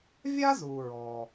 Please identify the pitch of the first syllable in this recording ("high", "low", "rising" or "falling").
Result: high